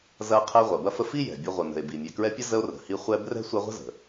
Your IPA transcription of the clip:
z ɐ˦ qʰ ɛ˦ ʁʷ ɐ˩ b ɐ˥ f ə˦ f i˥ j ɛ̤˩ bʲ ɐ˦ ʁʷ ə˨ n ə̤˨ e̯ b i˨ mʲ ɛ˨ k ɹ ɛ˦ pʲ ɐ˥ z ə˦ o̯ r ə̤˩ h i˥ χʷ ɛ˦ b r ɛ̤˥ sʷ ɛ˦ ʁʷ ə̤˥ z ə̤˩

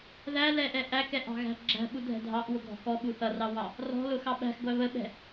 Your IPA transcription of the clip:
ð æ l ɛ ʔ ɛ ʔ æ k ɛ ʔ ɑ̤ ɣ æ̤ ɡ͡ǁ æ̤ ɓ u dʱ ɛ̤ dʱ ɑ ʔ w ʊ ɡʱ ɔ̤ k ɔ ɓ u θ ʌ r ɑ w ɑ | r ɔ̤ l ʊ x ɑ ɓ æ̤ x ɡʷ æ β ə ɓ ɛ̤

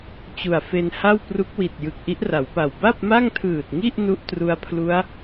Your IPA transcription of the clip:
t͡ɕ u˨˩ a̯ f e˧ n h a˥˩ w p r u˦˥ k̚ w i˨˩ t̚ j ɯ˨˩ k̚ ʔ i˦˥ ʔ r a˩˦ w p a˨˩ w b a˥˩ p̚ m a˥˩ ŋ tʰ ɯː˨˩ t̚ ŋ i˥˩ ʔ n u˥˩ ʔ t r u˧ a̯ pʰ l u˦˥ a̯

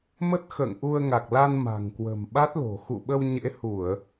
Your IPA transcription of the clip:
m ə˦˥ t̚ x ə̰ː˧˨ ŋ ʔ u˧ ə̯ ŋ a˨˩ k̚ l a˧ n m a̤˨˩ ŋ k w ə̤˨˩ m ɓ a˦˥ t̚ l o̤˨˩ x ṵ˧˨ ɓ ə˧ w ɲ ḛ˧˥ h u˧˩˨ ə̯

